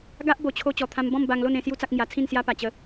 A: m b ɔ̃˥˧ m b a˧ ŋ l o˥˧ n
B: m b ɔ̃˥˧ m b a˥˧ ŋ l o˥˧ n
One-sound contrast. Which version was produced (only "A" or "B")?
A